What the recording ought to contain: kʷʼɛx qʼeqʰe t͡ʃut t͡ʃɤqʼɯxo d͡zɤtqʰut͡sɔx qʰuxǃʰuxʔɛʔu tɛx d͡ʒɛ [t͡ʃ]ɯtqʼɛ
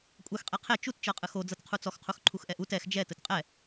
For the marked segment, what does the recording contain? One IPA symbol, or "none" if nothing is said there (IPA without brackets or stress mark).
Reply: t